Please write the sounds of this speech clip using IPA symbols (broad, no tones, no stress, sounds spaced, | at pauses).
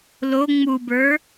l o ŋ͡m u b ə˞